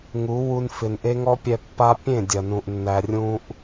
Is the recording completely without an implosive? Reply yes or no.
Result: yes